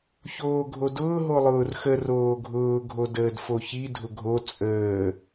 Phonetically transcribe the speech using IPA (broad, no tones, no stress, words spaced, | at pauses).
çoːɡʱodʊː ɦolˠʊːrxə roːɡʱʊː ɡʱodəːdfoçi dʱʊɡʱo t͡sʼəː